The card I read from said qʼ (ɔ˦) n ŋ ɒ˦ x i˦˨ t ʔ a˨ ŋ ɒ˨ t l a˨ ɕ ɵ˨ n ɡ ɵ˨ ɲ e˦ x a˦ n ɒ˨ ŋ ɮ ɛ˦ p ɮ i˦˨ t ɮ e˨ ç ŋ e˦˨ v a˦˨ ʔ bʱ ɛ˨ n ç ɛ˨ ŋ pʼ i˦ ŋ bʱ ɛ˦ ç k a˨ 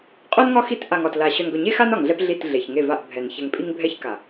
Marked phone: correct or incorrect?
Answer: incorrect